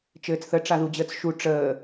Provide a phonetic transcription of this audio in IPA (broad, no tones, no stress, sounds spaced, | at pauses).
t͡ʃ ɘː t͡s θ ə ʈ͡ʂ a ð u d͡ʑ əː t͡s ʃ u ʈ͡ʂ əː